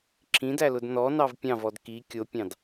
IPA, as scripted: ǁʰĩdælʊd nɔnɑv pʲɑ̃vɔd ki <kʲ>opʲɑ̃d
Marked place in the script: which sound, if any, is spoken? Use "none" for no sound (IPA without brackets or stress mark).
kʲ